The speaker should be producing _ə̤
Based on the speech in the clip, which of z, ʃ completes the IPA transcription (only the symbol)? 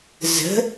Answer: z